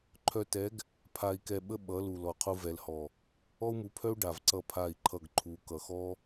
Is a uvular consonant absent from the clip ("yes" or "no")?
no